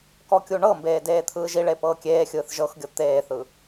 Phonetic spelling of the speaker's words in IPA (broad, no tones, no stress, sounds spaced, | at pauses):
k ɔ kʲ u ɳ ɤ m b eː d eː t̪ʰ ɯː ʒ i ɭ e p ɤː kʲ eː xʲ ɯː θ ʒ ɤ x ɡʲ ɤ t̪ eː θ ɯ